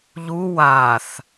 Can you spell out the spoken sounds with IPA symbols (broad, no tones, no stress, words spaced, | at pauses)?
ʎu waθ